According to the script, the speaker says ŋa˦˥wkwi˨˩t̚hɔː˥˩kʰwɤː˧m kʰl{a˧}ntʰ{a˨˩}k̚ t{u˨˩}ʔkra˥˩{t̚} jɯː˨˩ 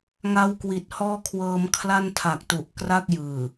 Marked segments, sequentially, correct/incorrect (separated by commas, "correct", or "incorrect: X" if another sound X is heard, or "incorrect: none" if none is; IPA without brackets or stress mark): incorrect: a˥˩, correct, correct, incorrect: k̚